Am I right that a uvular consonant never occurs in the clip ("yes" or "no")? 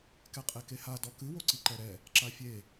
no